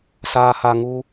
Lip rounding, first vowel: unrounded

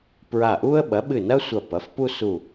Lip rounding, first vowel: unrounded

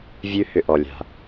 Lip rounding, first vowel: rounded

